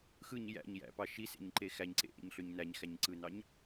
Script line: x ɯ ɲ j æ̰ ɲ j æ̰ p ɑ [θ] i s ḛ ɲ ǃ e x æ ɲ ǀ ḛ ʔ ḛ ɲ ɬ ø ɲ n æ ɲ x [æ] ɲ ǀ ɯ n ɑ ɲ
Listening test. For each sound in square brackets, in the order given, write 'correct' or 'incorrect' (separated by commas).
incorrect, correct